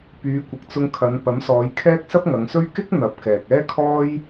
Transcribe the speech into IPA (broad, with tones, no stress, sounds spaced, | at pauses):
p yː˨˧ kʷ ɪ˨ k̚ t͡s ʊ˧ ŋ kʰ ɐ˨˧ n p ɐ˨˥ m s ɔː˨˧ j kʰ ɛː˥ k̚ s ɐ˥ p̚ ŋ ɐ˨˧ ŋ s ɵ˥ ɥ k ɪ˥ k̚ n̪ ɐ˨˥ p̚ k ɛː˨ k̚ ɛː˥ kʰ ɔː˥ j